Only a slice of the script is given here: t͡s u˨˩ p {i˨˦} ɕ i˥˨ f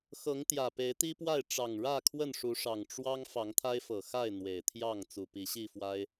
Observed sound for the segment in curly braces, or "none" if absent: i˨˦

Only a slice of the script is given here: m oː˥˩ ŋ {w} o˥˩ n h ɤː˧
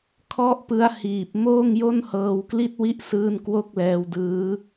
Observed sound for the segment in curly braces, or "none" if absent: j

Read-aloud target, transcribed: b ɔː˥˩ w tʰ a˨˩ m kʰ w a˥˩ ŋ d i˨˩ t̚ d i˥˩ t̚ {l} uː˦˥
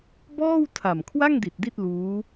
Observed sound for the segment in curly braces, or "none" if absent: l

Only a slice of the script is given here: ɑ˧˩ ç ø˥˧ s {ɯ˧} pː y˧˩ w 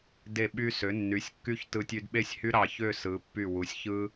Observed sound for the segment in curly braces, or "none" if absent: ɯ˩˧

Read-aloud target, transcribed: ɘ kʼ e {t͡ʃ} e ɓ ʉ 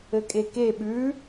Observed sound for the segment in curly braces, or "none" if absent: k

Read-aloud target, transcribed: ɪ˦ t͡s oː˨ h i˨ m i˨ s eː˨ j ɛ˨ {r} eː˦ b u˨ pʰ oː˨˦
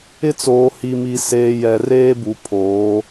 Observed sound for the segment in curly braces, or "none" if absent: r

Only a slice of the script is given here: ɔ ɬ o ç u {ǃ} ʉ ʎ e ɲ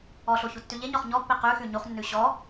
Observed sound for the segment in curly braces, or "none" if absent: tː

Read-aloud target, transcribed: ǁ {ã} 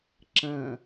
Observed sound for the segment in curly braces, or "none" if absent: ɐ̃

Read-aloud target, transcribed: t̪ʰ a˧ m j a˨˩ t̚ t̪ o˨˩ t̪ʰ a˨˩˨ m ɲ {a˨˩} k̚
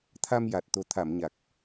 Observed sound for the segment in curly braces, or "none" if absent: a˨˩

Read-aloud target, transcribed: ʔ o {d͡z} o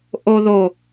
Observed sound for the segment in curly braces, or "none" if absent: ð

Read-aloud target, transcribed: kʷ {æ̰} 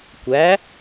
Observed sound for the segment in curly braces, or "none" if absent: æ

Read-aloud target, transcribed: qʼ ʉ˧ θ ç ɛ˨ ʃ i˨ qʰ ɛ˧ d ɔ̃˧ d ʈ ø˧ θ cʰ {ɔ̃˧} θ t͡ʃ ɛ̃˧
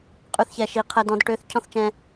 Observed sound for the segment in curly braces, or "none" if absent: ɔ̃˦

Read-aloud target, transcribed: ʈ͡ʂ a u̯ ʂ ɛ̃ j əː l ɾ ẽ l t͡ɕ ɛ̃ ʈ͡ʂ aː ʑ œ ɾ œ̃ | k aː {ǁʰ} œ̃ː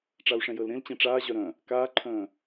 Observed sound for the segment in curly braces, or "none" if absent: ǃʰ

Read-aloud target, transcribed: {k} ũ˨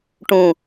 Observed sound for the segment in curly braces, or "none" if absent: ʈ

